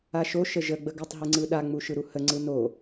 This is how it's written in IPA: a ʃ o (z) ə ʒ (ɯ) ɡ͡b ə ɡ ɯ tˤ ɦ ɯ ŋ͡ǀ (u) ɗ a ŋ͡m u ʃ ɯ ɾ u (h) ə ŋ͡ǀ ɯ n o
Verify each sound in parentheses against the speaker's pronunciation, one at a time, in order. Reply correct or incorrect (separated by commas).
incorrect, incorrect, incorrect, correct